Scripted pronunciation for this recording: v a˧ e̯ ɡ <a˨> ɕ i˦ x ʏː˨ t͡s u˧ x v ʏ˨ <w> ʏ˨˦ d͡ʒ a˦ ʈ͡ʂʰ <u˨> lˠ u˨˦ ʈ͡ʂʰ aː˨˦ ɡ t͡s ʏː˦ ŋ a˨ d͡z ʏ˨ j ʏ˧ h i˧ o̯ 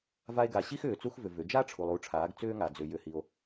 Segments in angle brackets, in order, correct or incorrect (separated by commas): correct, incorrect, correct